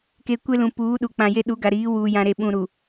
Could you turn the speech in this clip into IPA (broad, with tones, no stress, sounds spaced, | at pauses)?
k e˨ kʷ e˦ l ũ˨ p uː˨˦ ɗ u˨ k͡p ã˨ j e˦ ɗ u˨˦ ɡ a˨ ɾ iː˨˦ w uː˨ j ã˨ ɾ e˨ ɓ ũ˨ ɾ u˨